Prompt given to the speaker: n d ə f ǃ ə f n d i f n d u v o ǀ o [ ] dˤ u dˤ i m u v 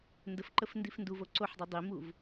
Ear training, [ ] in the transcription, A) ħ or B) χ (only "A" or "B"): A